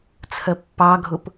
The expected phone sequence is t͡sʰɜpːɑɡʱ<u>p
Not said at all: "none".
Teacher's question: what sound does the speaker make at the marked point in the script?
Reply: ʊ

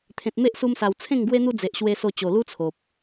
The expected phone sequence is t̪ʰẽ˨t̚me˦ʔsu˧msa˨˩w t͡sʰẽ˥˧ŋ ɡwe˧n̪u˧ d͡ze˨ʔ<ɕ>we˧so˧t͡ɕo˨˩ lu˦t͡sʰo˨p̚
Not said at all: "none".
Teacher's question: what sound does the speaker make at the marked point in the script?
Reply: ɕ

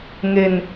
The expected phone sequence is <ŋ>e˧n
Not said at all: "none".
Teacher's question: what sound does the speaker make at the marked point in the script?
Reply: ŋ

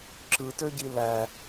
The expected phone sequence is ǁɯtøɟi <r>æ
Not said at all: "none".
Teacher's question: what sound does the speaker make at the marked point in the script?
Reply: l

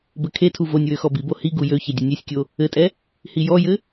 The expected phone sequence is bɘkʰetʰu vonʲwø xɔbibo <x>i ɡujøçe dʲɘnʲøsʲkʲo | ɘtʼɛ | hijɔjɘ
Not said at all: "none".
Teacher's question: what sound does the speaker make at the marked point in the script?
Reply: h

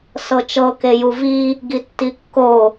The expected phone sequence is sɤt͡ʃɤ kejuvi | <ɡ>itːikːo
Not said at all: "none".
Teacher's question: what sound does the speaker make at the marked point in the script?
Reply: ɡ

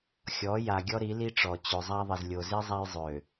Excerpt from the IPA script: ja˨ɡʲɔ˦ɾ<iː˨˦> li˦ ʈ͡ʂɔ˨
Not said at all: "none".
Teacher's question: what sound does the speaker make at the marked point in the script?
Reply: i˨˦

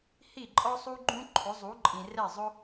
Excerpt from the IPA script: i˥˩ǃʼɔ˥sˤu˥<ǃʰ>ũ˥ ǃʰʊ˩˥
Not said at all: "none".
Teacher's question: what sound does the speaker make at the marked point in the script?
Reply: ɡ͡ǃ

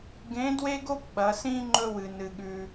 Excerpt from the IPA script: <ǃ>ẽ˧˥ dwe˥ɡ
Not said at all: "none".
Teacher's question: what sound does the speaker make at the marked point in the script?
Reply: ɡ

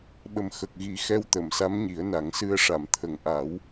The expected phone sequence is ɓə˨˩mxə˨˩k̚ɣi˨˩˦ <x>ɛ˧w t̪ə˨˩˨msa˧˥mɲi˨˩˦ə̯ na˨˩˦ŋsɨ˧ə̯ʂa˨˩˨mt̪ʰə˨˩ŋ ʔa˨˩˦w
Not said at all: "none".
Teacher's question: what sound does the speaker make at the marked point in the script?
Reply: x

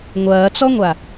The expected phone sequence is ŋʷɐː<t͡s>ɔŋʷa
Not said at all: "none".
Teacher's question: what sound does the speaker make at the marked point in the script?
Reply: t͡s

